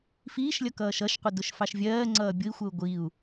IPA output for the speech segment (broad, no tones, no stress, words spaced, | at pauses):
fiːʃlʲʌ kʌːʃʌʃqʷə dʊʃfɑʃvʲɜːŋ͡ǀʌː bʲʊi̯xʷɜu̯ ɡʷiu̯